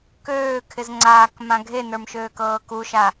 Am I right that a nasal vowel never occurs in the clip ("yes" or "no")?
no